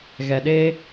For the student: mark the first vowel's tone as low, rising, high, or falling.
low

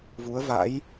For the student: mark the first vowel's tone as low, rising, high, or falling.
rising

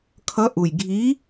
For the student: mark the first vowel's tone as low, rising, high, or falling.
rising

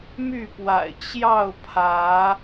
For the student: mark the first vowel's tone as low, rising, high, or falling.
falling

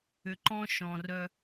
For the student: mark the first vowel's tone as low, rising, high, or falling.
low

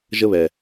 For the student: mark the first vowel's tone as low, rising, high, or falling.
falling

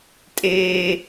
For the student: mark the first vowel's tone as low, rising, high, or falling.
high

